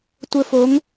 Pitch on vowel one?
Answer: high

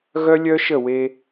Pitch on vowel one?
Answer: high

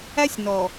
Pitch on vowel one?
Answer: high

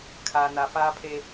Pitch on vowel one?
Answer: low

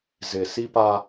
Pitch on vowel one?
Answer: low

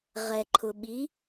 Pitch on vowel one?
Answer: low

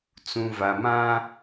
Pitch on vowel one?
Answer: low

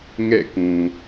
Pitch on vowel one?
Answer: falling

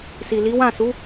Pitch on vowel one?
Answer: low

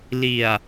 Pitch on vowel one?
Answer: low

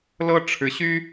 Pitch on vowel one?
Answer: high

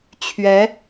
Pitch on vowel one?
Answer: rising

